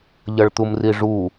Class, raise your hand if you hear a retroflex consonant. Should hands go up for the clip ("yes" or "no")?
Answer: yes